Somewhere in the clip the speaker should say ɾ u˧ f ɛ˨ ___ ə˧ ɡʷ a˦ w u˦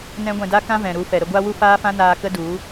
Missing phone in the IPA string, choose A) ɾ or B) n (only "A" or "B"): A